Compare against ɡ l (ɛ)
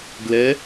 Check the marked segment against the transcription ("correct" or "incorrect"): correct